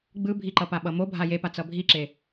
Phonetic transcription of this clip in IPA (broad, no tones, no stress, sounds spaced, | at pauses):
ɡ͡b ɯ bʱ i ǃ ʌ p a ɓ ʌ m o bʱ a j e p a t͡s ʌ bʱ i ǁ e